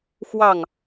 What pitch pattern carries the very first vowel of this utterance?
falling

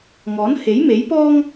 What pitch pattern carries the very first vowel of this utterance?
rising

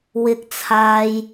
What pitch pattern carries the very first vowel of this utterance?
high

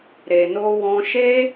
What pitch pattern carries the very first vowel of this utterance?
low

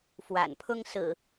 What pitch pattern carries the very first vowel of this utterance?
low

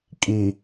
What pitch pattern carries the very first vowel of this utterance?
low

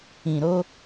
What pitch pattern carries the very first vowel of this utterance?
low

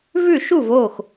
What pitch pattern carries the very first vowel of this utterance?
falling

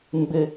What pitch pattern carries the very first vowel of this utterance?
high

